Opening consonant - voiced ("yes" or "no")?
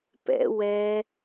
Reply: no